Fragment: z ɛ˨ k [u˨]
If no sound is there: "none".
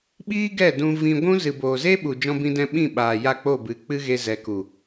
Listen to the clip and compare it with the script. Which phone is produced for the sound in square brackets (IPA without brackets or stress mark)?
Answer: u˨